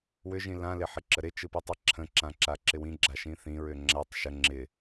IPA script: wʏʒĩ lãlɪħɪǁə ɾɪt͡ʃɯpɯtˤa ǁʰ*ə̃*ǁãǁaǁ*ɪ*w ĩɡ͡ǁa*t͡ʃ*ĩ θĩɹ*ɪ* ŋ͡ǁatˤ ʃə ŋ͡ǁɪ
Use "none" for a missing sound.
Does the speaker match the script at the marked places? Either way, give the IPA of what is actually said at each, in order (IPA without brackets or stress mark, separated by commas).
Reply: ə̃, ɪ, ʃ, ʏ